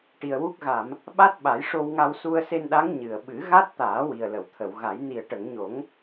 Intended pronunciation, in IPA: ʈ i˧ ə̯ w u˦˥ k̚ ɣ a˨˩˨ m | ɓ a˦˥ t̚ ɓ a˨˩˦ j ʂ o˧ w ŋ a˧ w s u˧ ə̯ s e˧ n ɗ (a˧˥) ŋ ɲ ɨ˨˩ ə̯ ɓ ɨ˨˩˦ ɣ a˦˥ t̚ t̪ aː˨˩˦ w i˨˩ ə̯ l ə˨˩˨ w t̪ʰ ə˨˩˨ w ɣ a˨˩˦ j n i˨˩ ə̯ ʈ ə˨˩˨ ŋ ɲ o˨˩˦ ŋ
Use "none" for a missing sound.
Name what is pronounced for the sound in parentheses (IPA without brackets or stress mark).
a˧˥